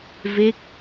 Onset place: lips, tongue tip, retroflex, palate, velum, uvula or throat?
lips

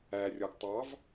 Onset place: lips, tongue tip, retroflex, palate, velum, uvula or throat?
tongue tip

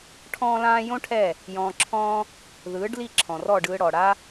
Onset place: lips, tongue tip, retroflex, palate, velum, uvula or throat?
retroflex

